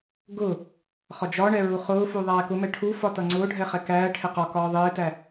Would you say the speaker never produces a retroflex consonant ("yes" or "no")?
no